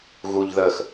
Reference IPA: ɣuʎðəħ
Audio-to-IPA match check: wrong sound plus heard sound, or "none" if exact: ħ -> x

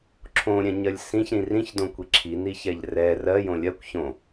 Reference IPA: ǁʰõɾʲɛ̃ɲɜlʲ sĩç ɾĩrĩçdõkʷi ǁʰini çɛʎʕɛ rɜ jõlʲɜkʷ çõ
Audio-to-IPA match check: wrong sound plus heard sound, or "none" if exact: ʕ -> r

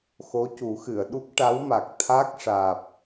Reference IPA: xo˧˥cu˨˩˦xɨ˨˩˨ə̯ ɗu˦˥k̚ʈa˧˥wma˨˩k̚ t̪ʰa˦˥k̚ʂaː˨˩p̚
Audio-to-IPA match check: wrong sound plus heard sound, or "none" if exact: none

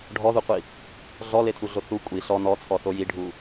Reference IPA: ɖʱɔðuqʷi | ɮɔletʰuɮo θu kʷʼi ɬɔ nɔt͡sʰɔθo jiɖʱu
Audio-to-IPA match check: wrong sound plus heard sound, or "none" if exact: none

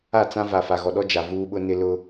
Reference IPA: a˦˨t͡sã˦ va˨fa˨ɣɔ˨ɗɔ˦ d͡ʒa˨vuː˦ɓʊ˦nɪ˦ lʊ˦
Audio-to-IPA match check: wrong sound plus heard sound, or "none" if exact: none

